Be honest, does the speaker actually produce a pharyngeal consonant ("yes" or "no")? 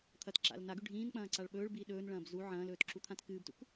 yes